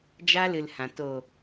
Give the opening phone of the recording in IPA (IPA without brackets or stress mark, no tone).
d͡ʒ